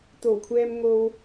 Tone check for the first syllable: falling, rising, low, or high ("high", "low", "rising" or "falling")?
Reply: low